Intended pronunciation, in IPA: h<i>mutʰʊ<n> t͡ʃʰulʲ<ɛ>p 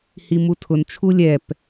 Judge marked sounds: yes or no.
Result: yes, yes, yes

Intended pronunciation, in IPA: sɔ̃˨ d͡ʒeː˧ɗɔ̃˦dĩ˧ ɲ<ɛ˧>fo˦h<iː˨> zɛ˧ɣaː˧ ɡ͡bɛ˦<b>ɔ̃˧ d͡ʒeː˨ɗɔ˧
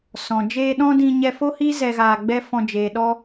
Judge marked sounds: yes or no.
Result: yes, no, no

